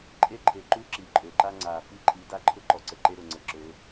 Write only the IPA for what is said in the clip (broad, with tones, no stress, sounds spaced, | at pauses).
ǃʼ e˦ ǃʰ e˨ ǃ u˦ ǁ i˨ ǃʼ ø˨ ǃ a˦ ŋ͡ǀ aː˨ f i˦ ǃʼ i˨˦ d a˦ ǃʰ ʊ˦ ǃ ɔ˨ ǀ ə˨ ǃ e˦ ɾ ʊ˨ ŋ͡ǀ ə˨ ǁ øː˨˦